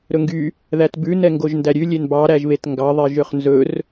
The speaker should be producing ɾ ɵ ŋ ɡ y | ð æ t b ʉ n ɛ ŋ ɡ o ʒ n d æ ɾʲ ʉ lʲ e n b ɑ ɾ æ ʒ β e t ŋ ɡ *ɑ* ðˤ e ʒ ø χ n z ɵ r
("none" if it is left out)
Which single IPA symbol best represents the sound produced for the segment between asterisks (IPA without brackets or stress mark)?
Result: ɑ